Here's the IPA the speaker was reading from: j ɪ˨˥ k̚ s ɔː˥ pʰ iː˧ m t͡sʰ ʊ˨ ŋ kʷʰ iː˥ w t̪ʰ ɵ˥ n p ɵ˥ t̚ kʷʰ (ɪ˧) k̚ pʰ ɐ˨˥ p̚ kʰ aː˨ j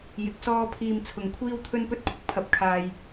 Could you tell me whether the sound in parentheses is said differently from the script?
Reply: yes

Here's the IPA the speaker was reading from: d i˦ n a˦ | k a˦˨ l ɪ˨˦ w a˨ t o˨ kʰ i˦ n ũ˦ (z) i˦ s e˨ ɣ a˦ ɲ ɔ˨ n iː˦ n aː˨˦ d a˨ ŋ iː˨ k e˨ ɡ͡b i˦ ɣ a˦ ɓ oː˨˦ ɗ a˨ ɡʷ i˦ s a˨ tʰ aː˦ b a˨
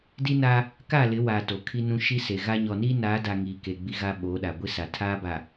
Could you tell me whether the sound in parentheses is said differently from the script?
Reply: yes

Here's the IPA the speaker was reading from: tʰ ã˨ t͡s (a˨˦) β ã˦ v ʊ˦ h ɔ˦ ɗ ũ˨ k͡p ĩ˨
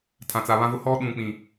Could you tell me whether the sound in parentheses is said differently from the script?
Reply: yes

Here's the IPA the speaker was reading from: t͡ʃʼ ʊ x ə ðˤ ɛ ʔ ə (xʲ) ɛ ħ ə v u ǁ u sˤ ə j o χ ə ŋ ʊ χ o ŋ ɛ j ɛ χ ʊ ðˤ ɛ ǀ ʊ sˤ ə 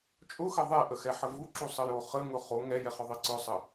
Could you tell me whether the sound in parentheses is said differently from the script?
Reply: yes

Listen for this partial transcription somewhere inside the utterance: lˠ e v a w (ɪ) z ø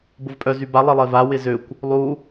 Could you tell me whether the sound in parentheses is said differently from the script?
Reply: no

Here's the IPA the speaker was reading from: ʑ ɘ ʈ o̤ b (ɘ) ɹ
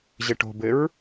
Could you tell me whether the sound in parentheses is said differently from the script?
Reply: no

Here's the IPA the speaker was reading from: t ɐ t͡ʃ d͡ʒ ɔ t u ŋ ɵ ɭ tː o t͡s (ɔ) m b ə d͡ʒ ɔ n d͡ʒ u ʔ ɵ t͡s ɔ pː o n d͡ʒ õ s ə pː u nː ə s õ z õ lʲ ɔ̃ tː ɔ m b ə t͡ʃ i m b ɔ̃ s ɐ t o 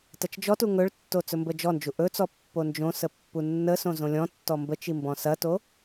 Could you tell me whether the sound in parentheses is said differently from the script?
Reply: yes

